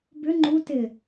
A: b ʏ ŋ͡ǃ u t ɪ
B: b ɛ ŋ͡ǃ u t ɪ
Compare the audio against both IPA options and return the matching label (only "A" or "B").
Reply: A